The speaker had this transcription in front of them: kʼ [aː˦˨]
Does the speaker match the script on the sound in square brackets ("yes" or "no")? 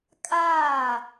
yes